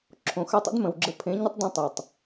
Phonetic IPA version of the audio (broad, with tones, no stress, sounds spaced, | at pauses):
ǁʰ õ˨ x ə˞˦ tˤ ə̰˦ d m ə̃˨ w ɡ͡ǁ ə˧ pʰ ẽ˨˦ ɲ ə˦ tˤ d õ˦ tˤ o˨ tˤ